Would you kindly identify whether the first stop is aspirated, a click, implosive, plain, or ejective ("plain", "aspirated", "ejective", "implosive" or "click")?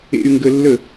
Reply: plain